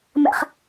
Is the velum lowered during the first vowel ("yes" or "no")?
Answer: no